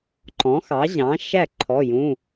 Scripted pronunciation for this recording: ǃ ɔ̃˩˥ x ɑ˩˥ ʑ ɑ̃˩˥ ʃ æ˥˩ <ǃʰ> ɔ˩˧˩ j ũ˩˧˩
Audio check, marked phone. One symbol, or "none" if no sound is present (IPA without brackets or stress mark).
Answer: ǃʰ